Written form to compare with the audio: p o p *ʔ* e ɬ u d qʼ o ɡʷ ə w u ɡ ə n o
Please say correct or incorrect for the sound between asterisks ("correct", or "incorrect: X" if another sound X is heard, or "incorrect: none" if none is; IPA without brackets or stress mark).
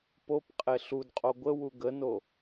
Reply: incorrect: qʼ